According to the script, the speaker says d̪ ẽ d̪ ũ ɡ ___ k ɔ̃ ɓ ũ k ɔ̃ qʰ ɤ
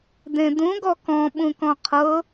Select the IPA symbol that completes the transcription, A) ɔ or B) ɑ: A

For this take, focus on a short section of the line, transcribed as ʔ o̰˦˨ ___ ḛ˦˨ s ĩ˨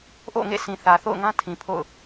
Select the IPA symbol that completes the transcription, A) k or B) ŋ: B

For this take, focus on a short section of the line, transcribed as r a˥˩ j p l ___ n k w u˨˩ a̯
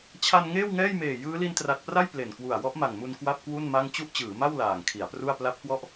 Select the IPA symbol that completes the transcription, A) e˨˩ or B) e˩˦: A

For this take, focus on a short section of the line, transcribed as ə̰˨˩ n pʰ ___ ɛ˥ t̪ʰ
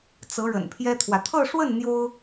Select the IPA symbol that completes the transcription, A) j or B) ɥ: A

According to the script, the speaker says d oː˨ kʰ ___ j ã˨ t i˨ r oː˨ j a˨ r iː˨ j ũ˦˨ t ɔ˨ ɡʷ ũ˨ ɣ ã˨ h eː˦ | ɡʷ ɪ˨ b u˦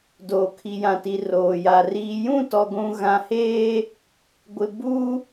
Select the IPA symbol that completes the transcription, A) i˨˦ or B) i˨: B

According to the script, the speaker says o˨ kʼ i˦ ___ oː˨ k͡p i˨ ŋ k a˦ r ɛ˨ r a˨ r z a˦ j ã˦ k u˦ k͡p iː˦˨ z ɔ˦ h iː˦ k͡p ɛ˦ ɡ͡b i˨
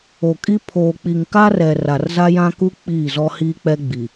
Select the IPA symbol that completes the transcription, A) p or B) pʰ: B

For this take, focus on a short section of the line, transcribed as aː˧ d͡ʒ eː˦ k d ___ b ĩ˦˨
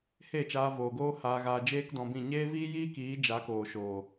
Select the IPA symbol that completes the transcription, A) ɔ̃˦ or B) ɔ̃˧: B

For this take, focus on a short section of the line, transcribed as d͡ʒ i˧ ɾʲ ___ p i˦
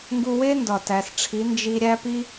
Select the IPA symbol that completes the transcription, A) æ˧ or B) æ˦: B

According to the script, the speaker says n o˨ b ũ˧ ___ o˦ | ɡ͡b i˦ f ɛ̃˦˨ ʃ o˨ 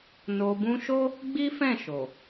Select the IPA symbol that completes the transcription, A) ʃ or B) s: A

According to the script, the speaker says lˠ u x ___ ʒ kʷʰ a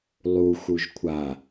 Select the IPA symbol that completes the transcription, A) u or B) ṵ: A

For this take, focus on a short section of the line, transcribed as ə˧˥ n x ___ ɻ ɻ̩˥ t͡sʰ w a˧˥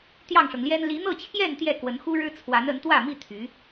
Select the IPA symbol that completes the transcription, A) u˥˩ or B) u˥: B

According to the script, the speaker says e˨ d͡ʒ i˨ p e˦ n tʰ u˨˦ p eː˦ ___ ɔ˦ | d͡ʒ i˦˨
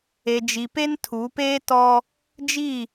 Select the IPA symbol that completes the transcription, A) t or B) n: A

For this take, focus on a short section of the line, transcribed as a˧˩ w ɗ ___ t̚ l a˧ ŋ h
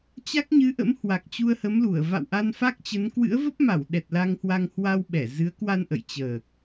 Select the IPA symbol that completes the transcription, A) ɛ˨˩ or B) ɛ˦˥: A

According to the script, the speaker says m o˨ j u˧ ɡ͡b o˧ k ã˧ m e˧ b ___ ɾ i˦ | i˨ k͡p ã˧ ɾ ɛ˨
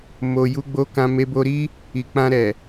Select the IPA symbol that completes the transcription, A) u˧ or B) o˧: B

